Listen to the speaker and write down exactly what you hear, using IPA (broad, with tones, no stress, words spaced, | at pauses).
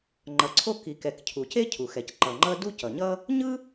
ŋ͡ǃʌ˩ǀʰo˥ ki˩kɛ˩k cʰu˩ce˥cʰu˩xɛ˩c ǃʌ˩ŋ͡ǃʌ˥ du˥cʌ˩ɲʌ˥ | ɲɯ˥